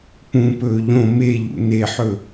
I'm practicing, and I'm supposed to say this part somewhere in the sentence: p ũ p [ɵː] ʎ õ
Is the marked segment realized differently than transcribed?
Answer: no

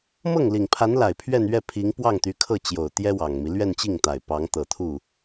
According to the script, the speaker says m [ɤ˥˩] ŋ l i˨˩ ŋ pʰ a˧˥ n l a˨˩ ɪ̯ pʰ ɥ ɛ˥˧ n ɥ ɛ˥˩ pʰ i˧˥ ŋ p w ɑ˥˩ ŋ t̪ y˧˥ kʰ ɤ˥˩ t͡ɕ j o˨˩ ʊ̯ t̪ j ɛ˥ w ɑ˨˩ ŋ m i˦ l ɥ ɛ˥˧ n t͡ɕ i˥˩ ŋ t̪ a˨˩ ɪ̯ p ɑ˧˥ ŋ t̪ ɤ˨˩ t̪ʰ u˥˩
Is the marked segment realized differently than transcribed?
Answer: no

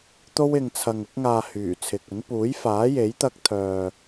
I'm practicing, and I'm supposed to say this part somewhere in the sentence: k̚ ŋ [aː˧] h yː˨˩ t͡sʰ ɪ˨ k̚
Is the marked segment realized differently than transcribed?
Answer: no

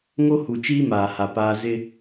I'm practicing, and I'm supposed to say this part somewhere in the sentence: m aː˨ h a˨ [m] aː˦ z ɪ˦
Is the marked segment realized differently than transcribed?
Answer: yes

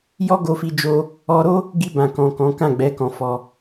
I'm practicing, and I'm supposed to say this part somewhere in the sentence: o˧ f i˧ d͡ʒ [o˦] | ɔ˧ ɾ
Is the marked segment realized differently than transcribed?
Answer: no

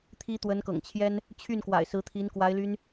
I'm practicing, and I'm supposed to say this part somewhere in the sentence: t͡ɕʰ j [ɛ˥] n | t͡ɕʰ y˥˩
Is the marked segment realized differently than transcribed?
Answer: no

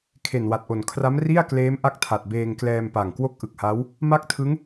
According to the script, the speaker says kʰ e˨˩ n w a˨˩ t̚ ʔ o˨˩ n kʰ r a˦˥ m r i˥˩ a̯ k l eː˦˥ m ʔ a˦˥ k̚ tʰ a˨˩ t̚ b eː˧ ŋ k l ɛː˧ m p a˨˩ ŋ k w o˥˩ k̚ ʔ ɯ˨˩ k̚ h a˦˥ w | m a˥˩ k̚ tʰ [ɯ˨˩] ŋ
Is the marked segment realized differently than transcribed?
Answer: yes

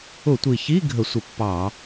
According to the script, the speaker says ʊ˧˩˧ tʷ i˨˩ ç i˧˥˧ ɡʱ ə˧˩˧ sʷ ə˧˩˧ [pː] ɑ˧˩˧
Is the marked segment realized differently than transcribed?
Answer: no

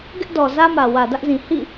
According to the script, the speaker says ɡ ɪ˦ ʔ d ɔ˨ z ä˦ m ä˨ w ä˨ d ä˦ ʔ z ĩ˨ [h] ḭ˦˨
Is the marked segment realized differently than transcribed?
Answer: no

